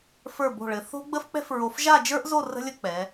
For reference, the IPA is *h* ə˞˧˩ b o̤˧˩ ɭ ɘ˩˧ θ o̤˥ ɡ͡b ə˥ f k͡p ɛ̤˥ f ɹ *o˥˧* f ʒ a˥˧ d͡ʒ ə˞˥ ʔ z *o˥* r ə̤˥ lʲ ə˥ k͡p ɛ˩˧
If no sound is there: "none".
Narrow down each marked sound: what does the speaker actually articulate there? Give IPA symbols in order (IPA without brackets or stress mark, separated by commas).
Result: f, o˧, o˥˧